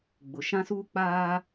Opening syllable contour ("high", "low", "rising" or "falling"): low